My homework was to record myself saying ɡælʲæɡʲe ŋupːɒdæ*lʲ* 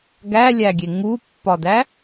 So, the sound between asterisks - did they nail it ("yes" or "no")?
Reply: no